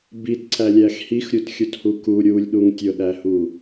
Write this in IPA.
bitǀælʲæx hixɾʲutxʲuthu ku ɾʲulʲɗuŋ tʲʊɗæhu

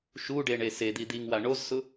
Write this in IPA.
ʃuɖeɳe sed̪i d̪iŋwa ɳozsʊ

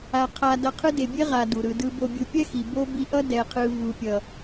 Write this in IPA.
a˧ qʰa˧dʌ˧qʰɯ˦de˨ bʲe˦ʁa˨ du˨ɾɯ˧dɯ˦ bo˧bʲɯ˧ pʲɛ˦xi˨ bo˧ bi˧ʔʌ˦ dɛ˨qʰɯ˨ vu˨pʲʌ˨

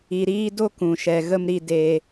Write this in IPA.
i˨ɾiː˧ do˧kũ˨ʃɛ˨ ɣə˧mɾi˧ de˧

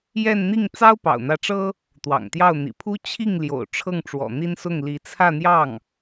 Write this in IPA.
jɛ˥˧nn̪i˥˩ŋ t͡sɑ˥ʊ̯pɑ̰˨˩ʊ̯n̪ä˧˥ʈ͡ʂɤ˥ | t̪wɑ̰˨˩ŋt̪jɑ˥˩ʊ̯ n̪ḭ˨˩pʰu˥ t͡ɕʰi˥˩ŋ ljo̰˨˩ʊ̯ʈ͡ʂʰɤ˥˩ŋʈ͡ʂwɔ̰˨˩ n̪i˥nsʊ˥˩ŋli˧˥ t͡sʰä˥˧n̪jɑ˥˩ŋ

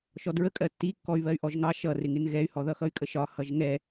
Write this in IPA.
ʃɔdɹəkʼɜ tːikːɔy̯ βɜy̯ʔɔʒŋɑ ʃʌrɪŋɪn ɣɛy̯hɔðʌxʌy̯ kʼəʃɒ hʌʒŋɛ

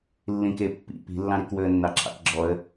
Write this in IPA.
lːĩkepːḭ pi̤lːɑ̃ɾikwɵə̯ nːɑǁʰɑ̰kɡ͡ǁɔə̯

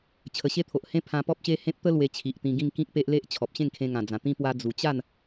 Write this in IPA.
t͡ɕʰə˨˩ɕe˥˧t̪ʰo˨ʔhẽ˦ pʰã˧pɔ˦p̚ɕe˦hẽ˦p̚ t̪ə˦ lwe˧t͡ɕʰi˨ʔt̪ĩ˧ɡĩ˥˧ŋ kĩ˦k̚pe˦ʔle˦ʔ t͡ɕʰɔ˨p̚ɕẽ˥˧ŋkʰẽ˧ ŋã˨˩d͡zã˨˩t̪ĩ˦ pwa˦ d͡zu˨˩t͡ɕa˥˧n

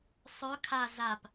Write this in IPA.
sˤœ kʰa zap

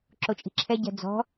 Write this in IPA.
ǁot͡ʃʼi̤ǁʰɛ ɟɛ̤d͡zɔ̤

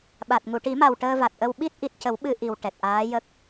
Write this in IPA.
ɓa˨˩t̚ ŋu˨˩˨ʈi˨˩˦ma˨˩w ʈəː˧va˨˩t̚ʔə˧w ɓi˦˥t̚ʔi˨˩t̚cə˨˩˦w ɓɨ˧ʔi˨˩wʈɛ˨˩t̚ ʔaː˧˥jə˦˥k̚

